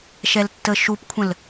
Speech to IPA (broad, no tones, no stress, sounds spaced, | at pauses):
ʃ ɛ l tː ə ʃ u p kʷʰ ə̃ l